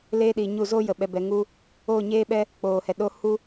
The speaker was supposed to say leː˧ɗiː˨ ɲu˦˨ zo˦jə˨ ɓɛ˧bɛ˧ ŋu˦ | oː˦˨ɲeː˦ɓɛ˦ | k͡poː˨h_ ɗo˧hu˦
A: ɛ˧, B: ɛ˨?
B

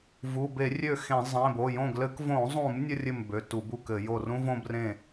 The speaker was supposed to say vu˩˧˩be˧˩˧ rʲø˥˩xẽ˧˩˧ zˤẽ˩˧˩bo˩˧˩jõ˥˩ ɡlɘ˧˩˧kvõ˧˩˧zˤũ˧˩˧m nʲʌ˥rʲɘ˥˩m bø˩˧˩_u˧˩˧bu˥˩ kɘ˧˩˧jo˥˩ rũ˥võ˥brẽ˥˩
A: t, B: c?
A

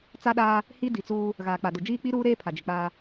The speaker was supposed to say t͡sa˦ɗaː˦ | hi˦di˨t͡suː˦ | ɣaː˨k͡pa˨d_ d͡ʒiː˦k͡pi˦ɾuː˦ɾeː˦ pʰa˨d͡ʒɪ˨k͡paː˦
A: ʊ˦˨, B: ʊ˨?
B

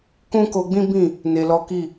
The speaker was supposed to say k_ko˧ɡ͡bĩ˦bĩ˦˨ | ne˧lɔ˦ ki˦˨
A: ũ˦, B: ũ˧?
A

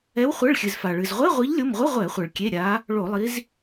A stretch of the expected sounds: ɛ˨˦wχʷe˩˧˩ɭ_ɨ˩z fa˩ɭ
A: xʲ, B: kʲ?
A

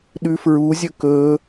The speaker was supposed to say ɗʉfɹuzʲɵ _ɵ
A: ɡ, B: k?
B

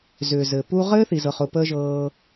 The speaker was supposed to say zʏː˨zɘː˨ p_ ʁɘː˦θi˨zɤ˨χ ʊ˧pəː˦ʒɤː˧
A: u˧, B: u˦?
B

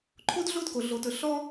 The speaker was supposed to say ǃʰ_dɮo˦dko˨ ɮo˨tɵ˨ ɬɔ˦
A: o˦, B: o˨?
A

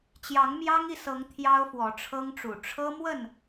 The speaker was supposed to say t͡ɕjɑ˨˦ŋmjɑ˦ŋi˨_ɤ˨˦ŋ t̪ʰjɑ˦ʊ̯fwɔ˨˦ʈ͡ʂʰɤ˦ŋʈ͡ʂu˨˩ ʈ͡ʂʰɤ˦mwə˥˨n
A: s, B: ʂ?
A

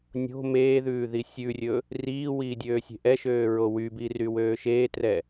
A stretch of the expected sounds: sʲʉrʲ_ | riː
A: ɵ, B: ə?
A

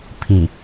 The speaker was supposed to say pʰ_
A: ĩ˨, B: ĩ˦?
A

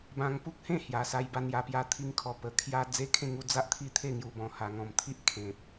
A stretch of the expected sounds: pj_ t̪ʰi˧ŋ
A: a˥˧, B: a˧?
B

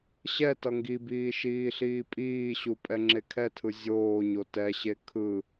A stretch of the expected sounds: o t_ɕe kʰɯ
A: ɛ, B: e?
A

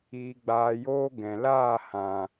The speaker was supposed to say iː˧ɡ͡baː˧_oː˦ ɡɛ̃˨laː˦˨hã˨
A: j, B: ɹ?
A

